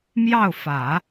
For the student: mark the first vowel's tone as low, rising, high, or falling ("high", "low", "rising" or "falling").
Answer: falling